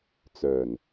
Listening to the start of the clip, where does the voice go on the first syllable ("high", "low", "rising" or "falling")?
low